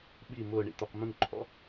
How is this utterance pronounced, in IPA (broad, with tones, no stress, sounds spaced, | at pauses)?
ɓ i˧˩ m ʊː˥˧ ɳ ḭ˧ t̪ o˧ q m ũ˥˧ ŋ ǃʰ ɔ̰˥